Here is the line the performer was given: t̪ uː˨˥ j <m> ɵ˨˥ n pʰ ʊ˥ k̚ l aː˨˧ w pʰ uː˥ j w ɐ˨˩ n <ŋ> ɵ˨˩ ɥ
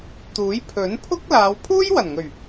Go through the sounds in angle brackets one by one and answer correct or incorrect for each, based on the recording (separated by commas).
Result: incorrect, correct